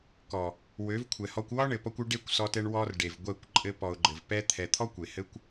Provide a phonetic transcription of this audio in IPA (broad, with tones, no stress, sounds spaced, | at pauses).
k ɔ˨ | w ø˨˦ v kʷʰ ɛ˨ h ɔ˧ kʷ w ɒ˦ ɳ ɘ˨ p ɔ˧ kʷ ø˧ ɖ e˦˨ kʷ s ɔ˧ t ɛ˧ ɳ w ɔ˧ r ɖ e˨ v ɡʷ ɛ˦˨ kʷ ǃʼ ɘ˧ p ɔ˨ ʊ̯ ɡ͡ǃ ɘ˨ v p ɛ˦ t̪ʰ ɛ˨ t̪ʰ ɔ˦ kʷ e˨ h ɘ˦ kʷ